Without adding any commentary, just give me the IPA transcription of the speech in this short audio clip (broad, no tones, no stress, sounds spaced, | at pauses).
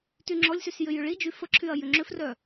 t y ŋ͡ǁ ɔ lʲ s y s j ʏ j ʏ ɭ i d͡ʒ y f ə ǁʰ y ɐ̯ j ʏ ŋ͡ǁ ʏ f r œ